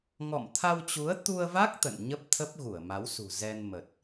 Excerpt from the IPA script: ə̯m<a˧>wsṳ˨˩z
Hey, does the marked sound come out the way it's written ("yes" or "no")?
no